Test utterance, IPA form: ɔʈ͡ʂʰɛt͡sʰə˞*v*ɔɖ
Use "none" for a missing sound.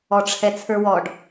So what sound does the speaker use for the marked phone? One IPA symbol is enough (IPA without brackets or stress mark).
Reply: w